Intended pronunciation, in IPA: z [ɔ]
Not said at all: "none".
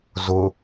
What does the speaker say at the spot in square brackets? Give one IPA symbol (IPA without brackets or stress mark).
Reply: ʊ